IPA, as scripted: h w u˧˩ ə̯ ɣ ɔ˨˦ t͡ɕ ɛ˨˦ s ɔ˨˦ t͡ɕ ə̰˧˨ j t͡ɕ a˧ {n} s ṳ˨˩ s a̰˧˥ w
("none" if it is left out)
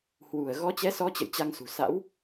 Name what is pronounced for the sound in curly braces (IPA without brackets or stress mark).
ŋ